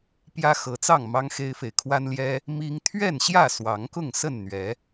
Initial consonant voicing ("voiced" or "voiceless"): voiceless